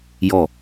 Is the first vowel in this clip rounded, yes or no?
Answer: yes